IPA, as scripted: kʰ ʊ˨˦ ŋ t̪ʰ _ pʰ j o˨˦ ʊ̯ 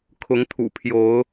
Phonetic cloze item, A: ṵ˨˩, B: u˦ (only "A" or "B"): A